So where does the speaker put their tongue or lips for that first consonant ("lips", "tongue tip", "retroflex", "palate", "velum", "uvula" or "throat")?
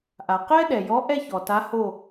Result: throat